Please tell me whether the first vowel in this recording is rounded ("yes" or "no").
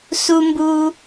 yes